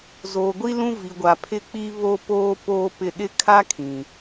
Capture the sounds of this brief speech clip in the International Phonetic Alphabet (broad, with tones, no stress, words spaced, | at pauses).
zoː˨ɡʷi˦lũ˦ vi˨ɡʷa˨pʰɪ˦˨k͡pi˦ βo˦poː˦ poː˦pɪ˦˨ ɗɪ˦kʰa˦ kʰĩ˨